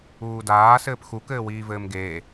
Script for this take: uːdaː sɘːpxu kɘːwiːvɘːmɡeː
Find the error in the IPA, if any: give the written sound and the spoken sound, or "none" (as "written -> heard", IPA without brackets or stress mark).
none